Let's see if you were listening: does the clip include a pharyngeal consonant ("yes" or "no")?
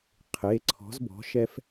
no